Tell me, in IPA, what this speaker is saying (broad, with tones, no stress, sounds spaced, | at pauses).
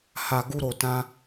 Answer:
h a˨ ɡ u˧ ɾ o˨ t ã˧